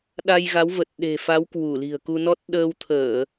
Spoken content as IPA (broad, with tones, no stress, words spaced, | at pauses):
ɗa˧jɣa˨˦wvə˨˩t̚ ɗe̤˨˩fa˨˦w kwu˧˩li̤˨˩ə̯ku˧nɔ˦˥t̚ ɗəː˧wt̪ʰəː˧˩˨